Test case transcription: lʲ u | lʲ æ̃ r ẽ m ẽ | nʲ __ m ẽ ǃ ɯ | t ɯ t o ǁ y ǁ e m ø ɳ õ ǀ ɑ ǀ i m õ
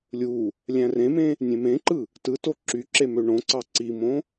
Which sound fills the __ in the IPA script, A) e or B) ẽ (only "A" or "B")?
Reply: B